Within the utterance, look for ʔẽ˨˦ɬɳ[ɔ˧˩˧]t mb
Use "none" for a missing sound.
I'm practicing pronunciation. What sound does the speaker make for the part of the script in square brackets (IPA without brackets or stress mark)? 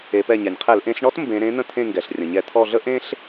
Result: ɔ˥